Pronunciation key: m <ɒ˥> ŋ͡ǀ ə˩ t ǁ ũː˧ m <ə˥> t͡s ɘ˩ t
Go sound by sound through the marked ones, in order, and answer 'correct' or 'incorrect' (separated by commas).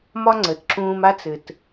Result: correct, incorrect